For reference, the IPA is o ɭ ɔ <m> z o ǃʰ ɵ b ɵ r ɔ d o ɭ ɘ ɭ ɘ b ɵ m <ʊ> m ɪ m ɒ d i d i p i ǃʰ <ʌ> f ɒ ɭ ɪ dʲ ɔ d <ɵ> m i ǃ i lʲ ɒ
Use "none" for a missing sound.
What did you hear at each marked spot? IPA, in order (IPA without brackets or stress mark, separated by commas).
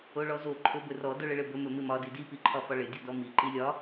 none, ɵ, ɒ, ɔ